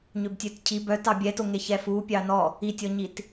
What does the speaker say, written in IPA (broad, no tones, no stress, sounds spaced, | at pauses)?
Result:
ɲ ø b tʲ ø t cʰ i b œ t ɑ bʲ ɛ t o ŋ e ç ɛ f u pʲ ɑ n ɔ | i tʲ ɔ ɲ i t